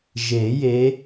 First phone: ʒ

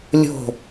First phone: lʲ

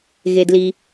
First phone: ɣ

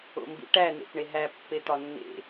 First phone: o̰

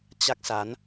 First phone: t͡ɕ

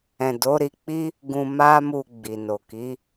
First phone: ɛ̃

